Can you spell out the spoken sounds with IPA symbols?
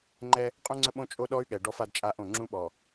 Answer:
ŋ͡ǃ ɛ˦ | qʼ ũ˦ ŋ͡ǀ ə˦ ɓ õ˦ t͡ʃʼ o˦ ɗ ɔ˦ y̯ ɠ ɛ˨ ɖ ɔ˦ f a˦ d t͡ʃʼ a˦ ʔ õ˦˨ ŋ͡ǁ ũ˦ ɓ ɔ˨

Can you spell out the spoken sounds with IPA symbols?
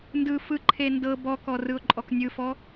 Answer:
n d ɯ f ɯ ǃʰ e n d ɤ b ɔ k ɔ r ɯ ʊ̯ ǃʼ ɔ k nʲ ɯ f ɔ

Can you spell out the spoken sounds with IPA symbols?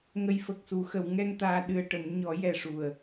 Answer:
ŋ ə˨˩ j f ə˨˩ k̚ s u˨˩˨ x ə˨˩˨ w ŋ ɛ˧ ŋ t̪ aː˧ ɗ ɨ˧ ə̯ ʈ ə˨˩˦ m ɲ ɔ˨˩˦ j ɛ˨˩ ʂ u˨˩ ə̯

